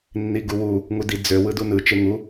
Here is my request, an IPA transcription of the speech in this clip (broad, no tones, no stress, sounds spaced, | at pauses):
nː i ɡ u w u | ŋ u d i d͡z ø w ɯ d u n ɯ t͡ʃ e ŋ u